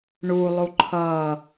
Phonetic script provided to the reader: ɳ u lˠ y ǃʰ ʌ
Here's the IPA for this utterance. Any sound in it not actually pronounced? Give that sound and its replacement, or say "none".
y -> u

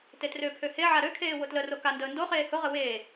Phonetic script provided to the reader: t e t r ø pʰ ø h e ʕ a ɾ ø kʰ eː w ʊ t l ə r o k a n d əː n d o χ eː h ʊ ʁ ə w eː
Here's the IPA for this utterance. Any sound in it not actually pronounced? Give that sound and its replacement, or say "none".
none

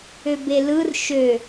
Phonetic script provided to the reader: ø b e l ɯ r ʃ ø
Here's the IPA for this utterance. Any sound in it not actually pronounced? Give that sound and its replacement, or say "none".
none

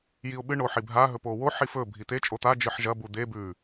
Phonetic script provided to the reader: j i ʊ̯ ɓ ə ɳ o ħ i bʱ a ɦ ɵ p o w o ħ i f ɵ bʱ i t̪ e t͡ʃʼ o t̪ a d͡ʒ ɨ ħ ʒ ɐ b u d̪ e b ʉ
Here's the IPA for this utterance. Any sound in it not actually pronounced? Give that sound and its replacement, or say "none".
ə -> ɨ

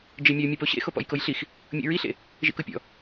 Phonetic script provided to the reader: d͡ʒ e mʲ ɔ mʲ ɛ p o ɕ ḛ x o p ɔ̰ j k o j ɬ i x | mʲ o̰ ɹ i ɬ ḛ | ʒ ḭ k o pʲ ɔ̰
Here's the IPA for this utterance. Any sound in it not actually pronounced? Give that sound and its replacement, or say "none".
none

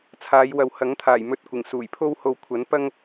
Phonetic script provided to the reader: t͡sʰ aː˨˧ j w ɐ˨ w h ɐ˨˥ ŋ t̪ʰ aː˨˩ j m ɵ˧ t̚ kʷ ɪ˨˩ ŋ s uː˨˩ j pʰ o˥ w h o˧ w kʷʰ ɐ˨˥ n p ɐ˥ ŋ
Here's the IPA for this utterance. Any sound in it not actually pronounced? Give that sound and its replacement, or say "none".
none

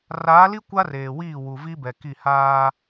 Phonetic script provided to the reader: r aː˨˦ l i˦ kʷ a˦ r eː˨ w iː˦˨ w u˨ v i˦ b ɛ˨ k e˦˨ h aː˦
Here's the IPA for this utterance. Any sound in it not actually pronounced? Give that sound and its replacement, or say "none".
e˦˨ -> i˦˨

